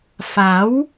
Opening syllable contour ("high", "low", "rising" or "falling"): rising